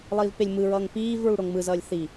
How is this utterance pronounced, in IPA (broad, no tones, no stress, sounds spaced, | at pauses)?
lˠ iː v p e lʲ m ɯ ɹ ʌː ŋ p iː v ɹ u ɽ o ŋ m ɯ z ʌː lʲ θ i